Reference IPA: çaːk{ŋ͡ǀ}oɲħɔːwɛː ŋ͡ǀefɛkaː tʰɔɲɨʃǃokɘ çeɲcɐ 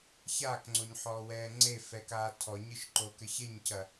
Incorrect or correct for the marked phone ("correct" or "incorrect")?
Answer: correct